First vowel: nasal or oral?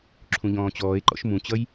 nasal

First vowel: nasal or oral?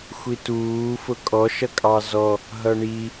oral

